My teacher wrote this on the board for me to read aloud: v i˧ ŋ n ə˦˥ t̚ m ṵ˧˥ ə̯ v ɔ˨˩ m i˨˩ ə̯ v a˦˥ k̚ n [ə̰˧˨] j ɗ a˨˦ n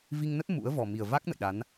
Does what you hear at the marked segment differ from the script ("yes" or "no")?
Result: no